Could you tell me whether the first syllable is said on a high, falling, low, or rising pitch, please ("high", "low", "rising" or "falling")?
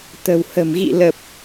low